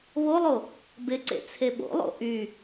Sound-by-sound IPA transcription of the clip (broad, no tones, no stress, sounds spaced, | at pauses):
β o lˠ o | b ɪ ǀ ḛ t͡sʰ e ɓ o̰ lˠ o̰ ʔ y